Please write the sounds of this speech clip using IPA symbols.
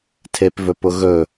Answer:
tʰ e p v ɵ p ʊ ɣ ɵ

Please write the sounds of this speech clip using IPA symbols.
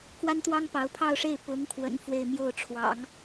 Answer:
k w a˥ n t̪ w ɑ˥ ŋ p ɑ˧˥ ʊ̯ pʰ ɑ˥˧ ʊ̯ ʂ e˥˩ ɪ̯ p ʊ˧˥ ŋ kʰ w ə̰˨˩ n f w e˥˧ ɪ̯ m j o˥˩ ʊ̯ ʈ͡ʂʰ w ɑ̰˨˩˦ ŋ

